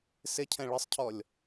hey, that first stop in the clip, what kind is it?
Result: aspirated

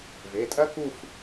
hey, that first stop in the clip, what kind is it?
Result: ejective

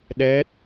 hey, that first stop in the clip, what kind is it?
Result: implosive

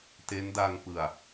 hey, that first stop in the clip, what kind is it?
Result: plain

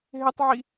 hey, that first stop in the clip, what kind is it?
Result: plain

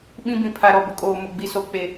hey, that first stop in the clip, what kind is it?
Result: implosive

